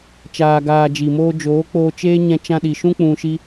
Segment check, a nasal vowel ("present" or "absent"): present